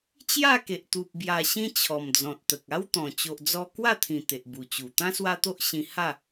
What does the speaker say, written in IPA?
t͡ɕja˥˧ke˨ʔ t̪u˨p̚ bja˨˩ɕĩ˧ t͡ɕʰɔ˨˩md͡zɔ̃˨t̚t̪ə˨k̚ a˦wt̪ɔ̃˨˩ t͡ɕo˨ʔd͡zɔ˧ kwa˥˧t̪ʰĩ˨˩ t̪e˨ʔbu˨˩t͡ɕu˨˩ t̪ã˦swa˦t̪o˦ʔɕĩ˧ ha˥˧

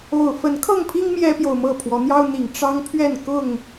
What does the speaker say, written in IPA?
o˨˩ʊ̯fə˨˦nkʰɤ˥˨ŋpʰi˦ŋ mjɛ˦pjo˨ʊ̯mɤ˥˨pʰwɔ˨˦ n̪jɑ˦ʊ̯n̪i˨˩ŋ ʈ͡ʂɑ˦ŋpʰɥɛ˥˨n kʊ˥˨ŋ

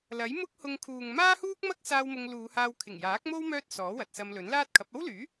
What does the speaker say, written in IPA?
lɐ˨˥j mʊ˥k̚ hʊ˧ŋkʰuː˨ŋ maː˥huː˥k̚mɐ˥k̚saː˧w mʊ˧ŋluː˨˧haː˧w kʰɪ˨˩ŋjaː˨˥k̚mo˥w mœː˥t̚sɔː˨˥wɐ˨t̚sɐ˧m lɵ˨˥n laː˥t̚kʰɐ˨˥p̚ ɐ˥wlyː˨˥

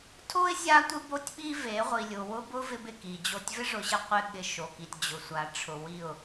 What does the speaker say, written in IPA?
tʰo˦ɪ̯ zʲa˦tʷɪ˦bo˦tʲɓi˦ ve˨˦ʁʷi˨lʲʊ˨ wʊ˦bʊ˦ vɪ˦bɪ˦˨ki˨d͡ʑo˦˨tʲ vɪ˦ʐʊ˨ɕɪ˦ qʷɪ˦ ɠɪ˦ʃo˨ki˨tʲ d͡ʑʊ˨sʷa˨ʈ͡ʂʰʊ˨wi˦˨ʊ̯

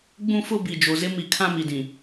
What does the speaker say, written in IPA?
ɡ͡bũ˦fʊ˦ bi˨d͡ʒo˨zɪ˦ mi˨kʰã˦ mi˨dĩ˨

